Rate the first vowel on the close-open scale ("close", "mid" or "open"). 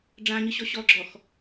open